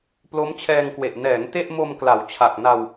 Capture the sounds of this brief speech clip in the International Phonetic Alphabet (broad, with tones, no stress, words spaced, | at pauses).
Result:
plo˦˥mt͡ɕʰɛː˧ŋkwe˨˩ʔ nɛː˩˦ŋ te˥˩ʔmo˧m kla˩˦w t͡ɕʰa˨˩k̚na˧w